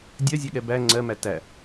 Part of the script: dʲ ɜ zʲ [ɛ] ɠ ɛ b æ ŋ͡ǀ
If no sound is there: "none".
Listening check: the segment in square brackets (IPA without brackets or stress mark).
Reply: ɛ